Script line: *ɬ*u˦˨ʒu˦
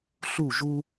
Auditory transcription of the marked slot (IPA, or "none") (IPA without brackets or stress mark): ɬ